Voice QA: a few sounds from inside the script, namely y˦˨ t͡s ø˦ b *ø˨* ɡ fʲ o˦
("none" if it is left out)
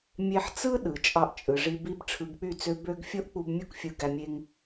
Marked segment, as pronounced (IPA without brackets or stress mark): ø˦